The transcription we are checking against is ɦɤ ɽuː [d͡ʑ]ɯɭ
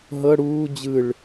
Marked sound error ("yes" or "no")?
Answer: no